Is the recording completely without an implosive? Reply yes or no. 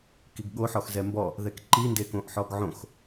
no